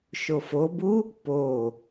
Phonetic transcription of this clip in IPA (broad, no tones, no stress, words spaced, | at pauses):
ʃofobu | po